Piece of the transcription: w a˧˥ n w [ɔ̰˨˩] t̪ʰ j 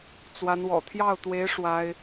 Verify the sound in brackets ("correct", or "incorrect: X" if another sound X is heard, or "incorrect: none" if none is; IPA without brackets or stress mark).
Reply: correct